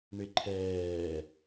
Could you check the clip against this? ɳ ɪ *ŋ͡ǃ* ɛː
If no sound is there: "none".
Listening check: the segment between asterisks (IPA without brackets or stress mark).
ǃʰ